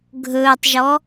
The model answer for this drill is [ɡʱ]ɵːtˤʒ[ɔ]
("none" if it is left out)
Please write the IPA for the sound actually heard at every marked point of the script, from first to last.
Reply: ɡʱ, ɔ

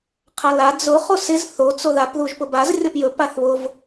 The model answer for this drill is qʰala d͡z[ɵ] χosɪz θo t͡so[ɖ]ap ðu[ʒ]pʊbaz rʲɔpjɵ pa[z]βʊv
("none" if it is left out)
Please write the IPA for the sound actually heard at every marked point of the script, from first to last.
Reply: ʊ, ð, ʒ, θ

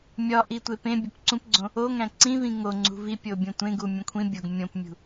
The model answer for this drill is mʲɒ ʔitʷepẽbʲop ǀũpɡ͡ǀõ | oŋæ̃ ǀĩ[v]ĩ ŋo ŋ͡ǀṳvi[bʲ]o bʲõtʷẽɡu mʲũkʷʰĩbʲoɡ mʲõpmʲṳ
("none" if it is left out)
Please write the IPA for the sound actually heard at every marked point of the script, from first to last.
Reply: v, pʲ

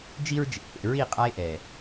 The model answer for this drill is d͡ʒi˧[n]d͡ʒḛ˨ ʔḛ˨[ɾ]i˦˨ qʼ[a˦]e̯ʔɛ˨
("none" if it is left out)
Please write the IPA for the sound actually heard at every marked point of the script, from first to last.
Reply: ɹ, ɹ, a˦

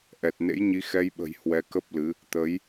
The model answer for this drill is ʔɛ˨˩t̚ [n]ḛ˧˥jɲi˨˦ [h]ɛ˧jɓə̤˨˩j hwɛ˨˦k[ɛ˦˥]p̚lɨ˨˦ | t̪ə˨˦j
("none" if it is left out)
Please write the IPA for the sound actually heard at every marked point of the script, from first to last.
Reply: n, x, ə˦˥

